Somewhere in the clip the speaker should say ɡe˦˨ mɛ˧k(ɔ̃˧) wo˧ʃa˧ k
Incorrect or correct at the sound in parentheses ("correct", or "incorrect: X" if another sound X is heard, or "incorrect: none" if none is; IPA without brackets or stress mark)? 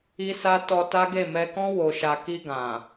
incorrect: ɔ̃˦